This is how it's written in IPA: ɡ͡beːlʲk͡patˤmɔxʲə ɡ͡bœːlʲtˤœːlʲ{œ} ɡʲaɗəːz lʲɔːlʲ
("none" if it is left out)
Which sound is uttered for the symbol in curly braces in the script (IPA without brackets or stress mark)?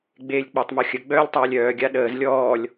œː